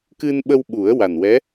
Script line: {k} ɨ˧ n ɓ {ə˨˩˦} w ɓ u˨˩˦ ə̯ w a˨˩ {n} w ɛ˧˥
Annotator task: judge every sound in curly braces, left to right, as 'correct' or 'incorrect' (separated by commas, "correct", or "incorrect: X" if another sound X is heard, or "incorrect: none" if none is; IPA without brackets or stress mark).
correct, incorrect: ə˧, correct